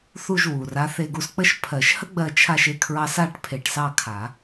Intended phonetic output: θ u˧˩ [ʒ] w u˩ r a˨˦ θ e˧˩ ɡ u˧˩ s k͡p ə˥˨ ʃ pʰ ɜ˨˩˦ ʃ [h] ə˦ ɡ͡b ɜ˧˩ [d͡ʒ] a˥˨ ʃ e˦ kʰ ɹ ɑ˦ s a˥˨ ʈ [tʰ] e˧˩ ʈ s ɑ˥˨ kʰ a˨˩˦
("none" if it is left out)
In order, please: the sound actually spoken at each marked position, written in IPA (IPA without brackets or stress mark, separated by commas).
ʒ, h, t͡ʃʰ, pʰ